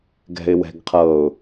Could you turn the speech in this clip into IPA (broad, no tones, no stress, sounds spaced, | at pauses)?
ɡ ɛ̤ ɪ̯ w ɛ̤ ɡ qʰ ɤ ʊ̯